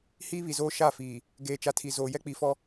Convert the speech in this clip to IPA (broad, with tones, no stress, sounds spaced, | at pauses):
h iː˦ β i˨ z oː˦ ʃ a˦˨ f iː˨ | ɡ eː˨ t͡ʃ a˨ tʰ i˨ z oː˨ j ɛ˦ k͡p i˨ f ɔ˦